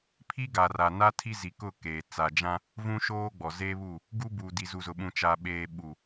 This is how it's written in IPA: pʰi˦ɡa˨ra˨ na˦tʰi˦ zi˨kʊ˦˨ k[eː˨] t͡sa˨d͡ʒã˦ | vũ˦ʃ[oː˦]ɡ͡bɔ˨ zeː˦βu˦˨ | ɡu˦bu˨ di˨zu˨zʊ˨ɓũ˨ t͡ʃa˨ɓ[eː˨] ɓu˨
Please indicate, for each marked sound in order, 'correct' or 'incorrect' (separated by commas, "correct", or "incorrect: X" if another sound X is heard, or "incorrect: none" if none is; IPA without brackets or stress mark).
correct, correct, correct